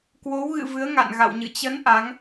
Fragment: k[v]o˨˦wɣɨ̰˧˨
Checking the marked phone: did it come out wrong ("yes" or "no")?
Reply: yes